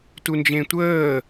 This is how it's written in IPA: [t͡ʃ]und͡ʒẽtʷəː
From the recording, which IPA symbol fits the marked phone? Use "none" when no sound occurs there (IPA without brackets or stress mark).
t